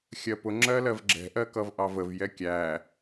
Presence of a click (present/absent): present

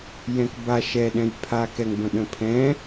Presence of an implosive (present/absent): present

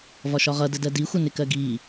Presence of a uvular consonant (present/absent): present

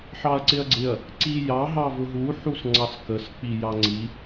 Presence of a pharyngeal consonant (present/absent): present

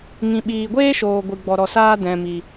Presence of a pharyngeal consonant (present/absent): absent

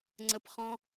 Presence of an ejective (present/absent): absent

